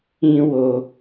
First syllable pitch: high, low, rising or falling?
high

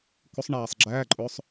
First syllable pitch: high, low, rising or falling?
rising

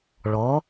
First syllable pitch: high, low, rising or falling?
rising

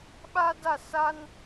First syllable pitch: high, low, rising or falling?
high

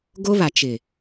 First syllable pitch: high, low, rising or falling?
high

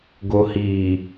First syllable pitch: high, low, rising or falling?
low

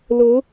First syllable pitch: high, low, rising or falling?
rising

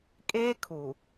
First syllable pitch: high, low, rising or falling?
high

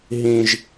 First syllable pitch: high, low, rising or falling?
low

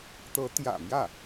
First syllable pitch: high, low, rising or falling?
rising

